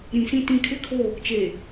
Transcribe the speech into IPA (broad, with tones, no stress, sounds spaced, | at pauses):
ɾ ĩ˨ s ĩ˦ t ĩ˨˦ kʰ ɪ˦ kʰ o˦˨ | t͡ʃ e˨